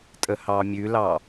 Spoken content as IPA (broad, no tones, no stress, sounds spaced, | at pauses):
tʼ ə h ɑ mʲ ʉ l ɑ